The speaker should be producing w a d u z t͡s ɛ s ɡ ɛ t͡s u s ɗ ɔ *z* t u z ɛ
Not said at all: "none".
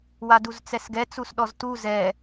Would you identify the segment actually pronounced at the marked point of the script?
z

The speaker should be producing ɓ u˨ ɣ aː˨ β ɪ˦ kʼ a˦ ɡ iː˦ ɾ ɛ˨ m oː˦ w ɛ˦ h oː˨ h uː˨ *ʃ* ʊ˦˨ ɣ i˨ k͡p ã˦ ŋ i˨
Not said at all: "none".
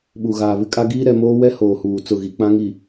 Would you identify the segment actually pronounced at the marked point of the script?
t͡s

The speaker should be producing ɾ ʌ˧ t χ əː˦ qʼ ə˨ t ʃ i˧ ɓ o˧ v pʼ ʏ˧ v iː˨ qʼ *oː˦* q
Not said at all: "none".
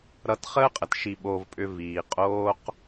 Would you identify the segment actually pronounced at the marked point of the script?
oː˦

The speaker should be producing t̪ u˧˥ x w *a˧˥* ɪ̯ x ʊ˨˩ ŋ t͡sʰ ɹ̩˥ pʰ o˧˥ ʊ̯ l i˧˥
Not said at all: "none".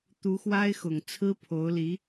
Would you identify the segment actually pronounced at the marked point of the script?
a˥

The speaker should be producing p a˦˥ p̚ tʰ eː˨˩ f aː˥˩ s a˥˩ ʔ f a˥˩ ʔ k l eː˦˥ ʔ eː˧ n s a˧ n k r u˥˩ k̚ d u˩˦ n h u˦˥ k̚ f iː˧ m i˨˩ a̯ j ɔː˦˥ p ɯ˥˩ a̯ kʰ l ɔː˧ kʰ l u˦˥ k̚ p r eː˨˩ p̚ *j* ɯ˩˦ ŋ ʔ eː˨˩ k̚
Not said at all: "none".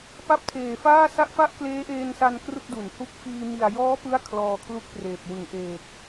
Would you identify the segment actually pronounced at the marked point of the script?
w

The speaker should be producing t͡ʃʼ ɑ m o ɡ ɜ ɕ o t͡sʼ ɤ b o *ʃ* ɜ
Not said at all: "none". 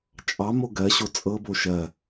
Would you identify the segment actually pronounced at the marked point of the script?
ʃ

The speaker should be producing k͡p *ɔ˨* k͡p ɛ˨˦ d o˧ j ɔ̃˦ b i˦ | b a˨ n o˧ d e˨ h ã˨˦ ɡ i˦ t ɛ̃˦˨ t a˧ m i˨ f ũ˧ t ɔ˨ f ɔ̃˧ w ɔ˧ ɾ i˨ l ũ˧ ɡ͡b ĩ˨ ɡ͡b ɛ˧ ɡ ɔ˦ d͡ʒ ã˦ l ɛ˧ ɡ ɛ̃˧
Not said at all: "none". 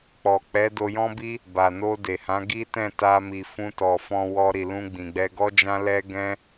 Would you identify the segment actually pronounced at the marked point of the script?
ɔ˨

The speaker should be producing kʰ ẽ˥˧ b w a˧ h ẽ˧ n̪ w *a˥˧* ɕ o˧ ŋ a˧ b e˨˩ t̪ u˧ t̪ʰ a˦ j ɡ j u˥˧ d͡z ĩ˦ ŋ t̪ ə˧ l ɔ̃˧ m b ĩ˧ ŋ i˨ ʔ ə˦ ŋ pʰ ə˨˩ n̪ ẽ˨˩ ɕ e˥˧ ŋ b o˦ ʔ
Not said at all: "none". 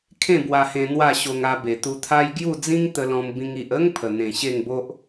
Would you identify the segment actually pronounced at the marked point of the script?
a˥˧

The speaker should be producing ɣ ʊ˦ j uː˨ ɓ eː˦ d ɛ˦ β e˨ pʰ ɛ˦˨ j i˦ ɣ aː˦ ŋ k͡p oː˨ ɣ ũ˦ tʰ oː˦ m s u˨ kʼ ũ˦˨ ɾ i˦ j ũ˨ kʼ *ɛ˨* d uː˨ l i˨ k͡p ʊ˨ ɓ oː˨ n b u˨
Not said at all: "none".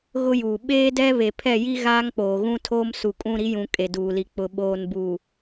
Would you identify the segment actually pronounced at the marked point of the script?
e˨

